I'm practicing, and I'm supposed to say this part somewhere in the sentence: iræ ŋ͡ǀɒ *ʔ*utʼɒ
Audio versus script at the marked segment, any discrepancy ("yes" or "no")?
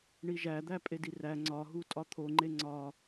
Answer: yes